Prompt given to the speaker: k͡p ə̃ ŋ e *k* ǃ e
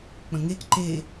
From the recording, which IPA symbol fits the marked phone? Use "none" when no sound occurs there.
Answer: k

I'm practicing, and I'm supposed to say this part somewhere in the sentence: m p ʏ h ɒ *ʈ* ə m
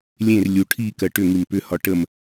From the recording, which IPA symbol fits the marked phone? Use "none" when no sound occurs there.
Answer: ʈ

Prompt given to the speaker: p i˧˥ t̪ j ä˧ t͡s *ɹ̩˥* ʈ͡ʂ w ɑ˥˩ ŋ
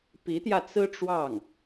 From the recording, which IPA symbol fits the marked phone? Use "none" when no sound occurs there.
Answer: ɹ̩˥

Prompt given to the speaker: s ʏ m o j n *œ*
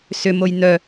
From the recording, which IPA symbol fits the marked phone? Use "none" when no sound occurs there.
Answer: œ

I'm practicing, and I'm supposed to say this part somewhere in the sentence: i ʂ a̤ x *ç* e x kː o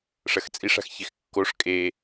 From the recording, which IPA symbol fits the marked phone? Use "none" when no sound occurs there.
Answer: ç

